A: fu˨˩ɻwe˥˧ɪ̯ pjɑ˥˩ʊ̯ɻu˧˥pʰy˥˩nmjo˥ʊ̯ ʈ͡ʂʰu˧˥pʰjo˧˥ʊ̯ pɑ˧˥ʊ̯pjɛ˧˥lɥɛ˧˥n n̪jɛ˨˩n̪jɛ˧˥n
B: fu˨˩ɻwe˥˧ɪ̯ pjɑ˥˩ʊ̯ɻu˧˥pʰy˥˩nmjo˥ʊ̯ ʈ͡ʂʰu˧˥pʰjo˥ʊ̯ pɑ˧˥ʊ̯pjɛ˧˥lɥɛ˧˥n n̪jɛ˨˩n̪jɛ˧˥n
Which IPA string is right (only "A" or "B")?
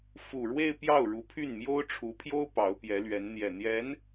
B